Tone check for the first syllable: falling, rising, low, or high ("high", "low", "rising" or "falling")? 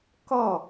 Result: falling